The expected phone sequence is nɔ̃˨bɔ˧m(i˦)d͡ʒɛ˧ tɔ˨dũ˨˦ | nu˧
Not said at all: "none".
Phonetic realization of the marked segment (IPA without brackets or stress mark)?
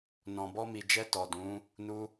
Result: i˨